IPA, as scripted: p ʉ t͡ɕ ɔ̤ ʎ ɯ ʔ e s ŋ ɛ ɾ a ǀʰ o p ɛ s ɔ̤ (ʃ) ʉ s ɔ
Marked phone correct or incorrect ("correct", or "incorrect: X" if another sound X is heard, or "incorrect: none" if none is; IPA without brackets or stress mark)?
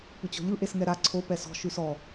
correct